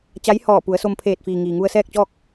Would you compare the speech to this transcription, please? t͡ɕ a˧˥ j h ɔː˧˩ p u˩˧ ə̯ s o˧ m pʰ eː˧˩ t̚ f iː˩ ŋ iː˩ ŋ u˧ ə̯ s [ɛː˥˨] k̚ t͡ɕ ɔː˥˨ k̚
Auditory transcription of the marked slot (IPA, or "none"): ɛː˥˨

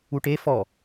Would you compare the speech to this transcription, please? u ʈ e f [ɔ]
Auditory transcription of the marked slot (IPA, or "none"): ɔ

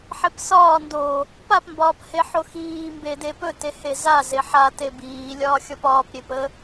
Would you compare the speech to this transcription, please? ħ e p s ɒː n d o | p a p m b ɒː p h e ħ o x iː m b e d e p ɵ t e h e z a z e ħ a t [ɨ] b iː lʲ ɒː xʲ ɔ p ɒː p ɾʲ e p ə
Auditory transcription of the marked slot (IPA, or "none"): e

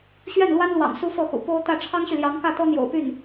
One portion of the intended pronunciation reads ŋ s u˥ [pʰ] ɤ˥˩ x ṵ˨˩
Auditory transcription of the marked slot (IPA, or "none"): f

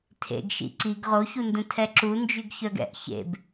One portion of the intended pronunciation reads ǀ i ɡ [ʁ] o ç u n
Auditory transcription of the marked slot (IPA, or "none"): ʁ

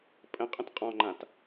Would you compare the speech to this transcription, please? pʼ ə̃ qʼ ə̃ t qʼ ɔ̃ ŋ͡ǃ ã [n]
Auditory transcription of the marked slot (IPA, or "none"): t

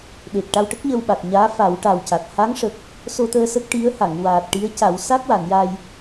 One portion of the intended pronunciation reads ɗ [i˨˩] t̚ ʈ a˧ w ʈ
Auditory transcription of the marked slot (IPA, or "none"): e˨˩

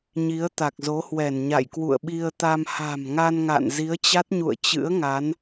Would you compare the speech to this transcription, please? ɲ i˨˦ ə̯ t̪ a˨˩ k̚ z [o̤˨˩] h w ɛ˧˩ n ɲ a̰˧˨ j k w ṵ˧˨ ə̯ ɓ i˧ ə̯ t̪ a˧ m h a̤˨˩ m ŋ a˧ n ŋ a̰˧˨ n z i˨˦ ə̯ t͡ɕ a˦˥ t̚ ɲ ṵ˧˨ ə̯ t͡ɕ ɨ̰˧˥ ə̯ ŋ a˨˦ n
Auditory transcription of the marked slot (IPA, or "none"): o˨˦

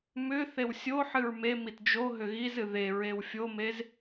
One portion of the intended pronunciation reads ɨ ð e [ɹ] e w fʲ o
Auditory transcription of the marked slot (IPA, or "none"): ɹ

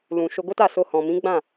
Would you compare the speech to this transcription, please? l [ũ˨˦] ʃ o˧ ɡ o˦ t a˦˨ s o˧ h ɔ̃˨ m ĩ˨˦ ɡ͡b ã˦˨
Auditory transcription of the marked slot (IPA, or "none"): ũ˨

